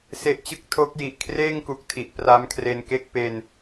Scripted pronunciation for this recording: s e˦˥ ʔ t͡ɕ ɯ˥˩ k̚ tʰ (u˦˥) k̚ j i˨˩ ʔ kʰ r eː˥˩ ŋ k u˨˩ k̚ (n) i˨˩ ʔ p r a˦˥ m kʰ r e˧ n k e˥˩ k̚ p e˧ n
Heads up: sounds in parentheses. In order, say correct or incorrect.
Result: incorrect: o˦˥, incorrect: tʰ

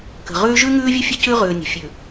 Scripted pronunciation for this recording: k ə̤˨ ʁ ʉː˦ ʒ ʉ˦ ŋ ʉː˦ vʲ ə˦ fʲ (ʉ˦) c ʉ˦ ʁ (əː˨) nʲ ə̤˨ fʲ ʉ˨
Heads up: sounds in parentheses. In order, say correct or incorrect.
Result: incorrect: ə˦, incorrect: ʉː˨

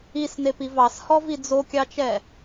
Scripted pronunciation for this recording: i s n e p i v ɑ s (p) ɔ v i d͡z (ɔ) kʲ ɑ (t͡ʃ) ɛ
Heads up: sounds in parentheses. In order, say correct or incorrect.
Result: incorrect: h, incorrect: o, correct

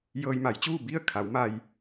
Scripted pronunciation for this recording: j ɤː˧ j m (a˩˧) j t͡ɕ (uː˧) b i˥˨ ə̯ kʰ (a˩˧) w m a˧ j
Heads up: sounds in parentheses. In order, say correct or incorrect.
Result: correct, incorrect: uː˥˨, correct

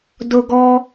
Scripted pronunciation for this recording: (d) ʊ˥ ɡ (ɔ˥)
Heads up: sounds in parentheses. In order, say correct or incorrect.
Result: correct, correct

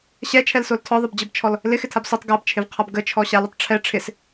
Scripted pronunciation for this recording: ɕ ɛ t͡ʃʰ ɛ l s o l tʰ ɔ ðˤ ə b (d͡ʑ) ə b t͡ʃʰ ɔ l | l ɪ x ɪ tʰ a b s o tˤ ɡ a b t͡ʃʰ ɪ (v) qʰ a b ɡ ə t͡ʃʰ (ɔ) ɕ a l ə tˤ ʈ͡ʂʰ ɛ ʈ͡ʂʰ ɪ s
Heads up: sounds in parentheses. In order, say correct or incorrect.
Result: correct, correct, correct

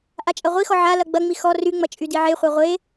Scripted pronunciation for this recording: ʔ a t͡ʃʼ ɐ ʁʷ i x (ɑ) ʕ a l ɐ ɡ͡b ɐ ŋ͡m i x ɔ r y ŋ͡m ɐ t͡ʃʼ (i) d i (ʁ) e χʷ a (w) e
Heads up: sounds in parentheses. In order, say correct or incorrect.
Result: incorrect: ɔ, incorrect: y, incorrect: ʕ, incorrect: ʁʷ

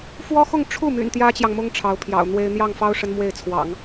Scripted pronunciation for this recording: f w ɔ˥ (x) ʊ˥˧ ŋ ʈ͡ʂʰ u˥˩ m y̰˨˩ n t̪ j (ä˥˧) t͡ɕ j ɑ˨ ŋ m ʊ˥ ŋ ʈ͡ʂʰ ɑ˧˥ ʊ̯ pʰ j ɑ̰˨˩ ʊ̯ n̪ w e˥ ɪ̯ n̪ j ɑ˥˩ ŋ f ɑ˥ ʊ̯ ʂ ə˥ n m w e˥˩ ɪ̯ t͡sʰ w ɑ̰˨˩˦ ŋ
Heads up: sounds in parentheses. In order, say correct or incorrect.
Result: correct, incorrect: ä˥

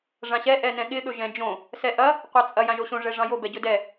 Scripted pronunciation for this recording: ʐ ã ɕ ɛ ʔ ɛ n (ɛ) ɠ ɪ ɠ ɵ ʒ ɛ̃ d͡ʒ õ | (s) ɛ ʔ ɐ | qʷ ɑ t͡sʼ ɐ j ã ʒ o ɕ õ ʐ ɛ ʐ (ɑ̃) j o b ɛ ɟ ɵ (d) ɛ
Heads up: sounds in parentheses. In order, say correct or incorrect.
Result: incorrect: ɛ̃, correct, correct, correct

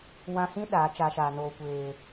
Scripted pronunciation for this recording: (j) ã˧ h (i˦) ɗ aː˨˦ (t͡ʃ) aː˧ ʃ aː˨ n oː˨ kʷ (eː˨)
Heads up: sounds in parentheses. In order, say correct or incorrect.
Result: incorrect: w, incorrect: ĩ˦, correct, correct

